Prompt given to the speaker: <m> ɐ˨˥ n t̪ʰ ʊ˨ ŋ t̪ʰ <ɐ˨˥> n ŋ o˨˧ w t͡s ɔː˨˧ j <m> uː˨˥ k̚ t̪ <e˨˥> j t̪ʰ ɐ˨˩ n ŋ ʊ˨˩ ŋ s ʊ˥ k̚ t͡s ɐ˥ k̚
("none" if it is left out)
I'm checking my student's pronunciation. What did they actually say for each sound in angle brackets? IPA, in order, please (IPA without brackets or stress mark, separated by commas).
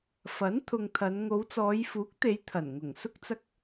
f, ɐ˨˧, f, e˨˧